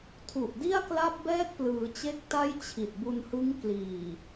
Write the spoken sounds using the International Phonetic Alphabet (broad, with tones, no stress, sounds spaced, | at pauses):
tʰ u˨˩ ʔ d i˥˩ a̯ k l a˥˩ p̚ b ɛː˥˩ k̚ p l ɯː˩˦ t͡ɕ e˦˥ k̚ t a˥˩ j t͡ɕʰ i˨˩ t̚ b u˧ n h ɯ˦˥ ŋ k l iː˨˩